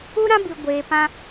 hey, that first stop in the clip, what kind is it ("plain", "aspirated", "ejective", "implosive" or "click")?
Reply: plain